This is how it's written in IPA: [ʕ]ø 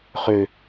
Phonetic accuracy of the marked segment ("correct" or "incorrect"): incorrect